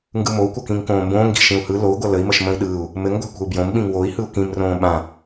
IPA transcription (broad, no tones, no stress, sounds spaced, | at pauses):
ŋ ɡ ɯ m o u̯ kʷ ʌ k ĩ ŋ k õː m b õː ŋ ɡ i̤ ʃ ĩ u̯ h ɯ l o u̯ ɡʷ ʌ l ə i̯ m ə ʃ m ə̃ i̯ ɗ ɯː u̯ | m ɘ ŋ ɡʷ a̤ kʷ ə̤ u̯ b j õ m ɓ ĩ ŋ w o i̯ h ɯ u̯ k ĩ m r õː ɓ ã